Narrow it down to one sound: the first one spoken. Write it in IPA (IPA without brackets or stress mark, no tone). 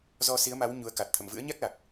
z